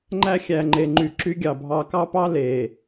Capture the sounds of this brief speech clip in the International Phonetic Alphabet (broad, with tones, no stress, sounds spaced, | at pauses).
ŋ͡ǃ æ˦ xʲ æ˨ ŋ͡ǃ e˨ ŋ͡ǃ y˨ ǁ y˦ ɡʲ ɑ˨ bʱ ɑ˨ k ɑ˦ p ɑ˦ l e˨